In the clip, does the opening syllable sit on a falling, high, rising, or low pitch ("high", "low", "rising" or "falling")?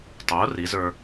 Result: rising